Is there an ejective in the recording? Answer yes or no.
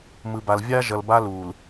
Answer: no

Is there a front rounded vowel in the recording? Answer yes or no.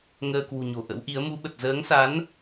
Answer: no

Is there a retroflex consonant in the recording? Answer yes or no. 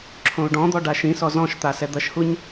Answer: yes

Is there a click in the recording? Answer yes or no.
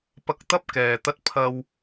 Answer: no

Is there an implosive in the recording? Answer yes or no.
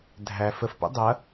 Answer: no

